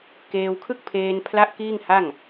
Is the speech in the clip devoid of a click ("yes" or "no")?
yes